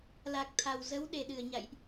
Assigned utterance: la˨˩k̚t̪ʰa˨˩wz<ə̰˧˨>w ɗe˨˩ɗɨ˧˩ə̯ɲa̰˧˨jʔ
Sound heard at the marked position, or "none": ə˨˦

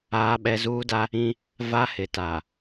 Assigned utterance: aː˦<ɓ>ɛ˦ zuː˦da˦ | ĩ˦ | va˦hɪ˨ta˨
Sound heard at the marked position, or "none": ɓ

